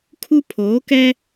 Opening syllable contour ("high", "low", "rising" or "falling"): high